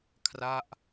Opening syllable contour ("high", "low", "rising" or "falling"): falling